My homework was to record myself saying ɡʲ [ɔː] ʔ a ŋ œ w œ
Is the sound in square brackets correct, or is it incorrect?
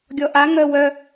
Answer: incorrect